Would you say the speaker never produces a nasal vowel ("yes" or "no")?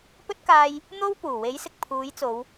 yes